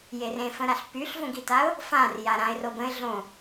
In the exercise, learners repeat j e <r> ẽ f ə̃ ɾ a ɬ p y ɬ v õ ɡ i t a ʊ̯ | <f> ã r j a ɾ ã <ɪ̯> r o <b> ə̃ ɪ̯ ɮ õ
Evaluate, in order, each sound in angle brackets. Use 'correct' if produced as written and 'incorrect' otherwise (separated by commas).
correct, correct, correct, correct